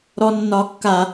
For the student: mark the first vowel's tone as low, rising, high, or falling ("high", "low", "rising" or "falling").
high